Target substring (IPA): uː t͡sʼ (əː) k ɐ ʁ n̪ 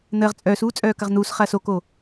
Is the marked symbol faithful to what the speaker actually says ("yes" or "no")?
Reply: no